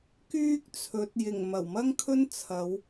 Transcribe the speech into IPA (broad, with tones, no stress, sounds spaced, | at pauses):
k yː˥ k̚ t͡sʰ ɵ˨˥ t̚ j ɪ˨˩ ŋ m ɐ˨˩ w m ɐ˥ ŋ kʰ ɵ˥ n t͡sʰ ɐ˨˧ w